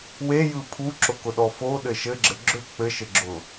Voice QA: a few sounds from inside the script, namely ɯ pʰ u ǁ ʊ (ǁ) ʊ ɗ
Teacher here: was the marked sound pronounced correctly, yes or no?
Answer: no